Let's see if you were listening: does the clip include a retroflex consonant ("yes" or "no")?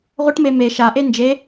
yes